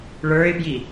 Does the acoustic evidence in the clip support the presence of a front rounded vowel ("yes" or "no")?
no